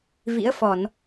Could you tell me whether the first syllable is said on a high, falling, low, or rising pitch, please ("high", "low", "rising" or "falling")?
rising